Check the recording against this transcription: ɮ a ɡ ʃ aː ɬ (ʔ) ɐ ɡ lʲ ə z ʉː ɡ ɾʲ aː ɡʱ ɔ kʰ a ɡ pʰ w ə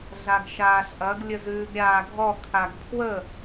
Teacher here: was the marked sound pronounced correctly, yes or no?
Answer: yes